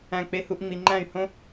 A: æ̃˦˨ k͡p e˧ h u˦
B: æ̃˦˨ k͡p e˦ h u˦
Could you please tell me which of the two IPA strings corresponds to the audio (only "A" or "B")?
B